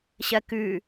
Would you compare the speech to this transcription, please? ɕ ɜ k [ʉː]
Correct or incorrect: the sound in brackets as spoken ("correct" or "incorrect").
correct